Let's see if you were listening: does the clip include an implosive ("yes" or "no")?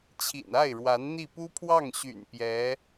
no